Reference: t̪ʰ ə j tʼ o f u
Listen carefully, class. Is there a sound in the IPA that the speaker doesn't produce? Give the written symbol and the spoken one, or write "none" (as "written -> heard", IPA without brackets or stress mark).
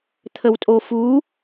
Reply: j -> w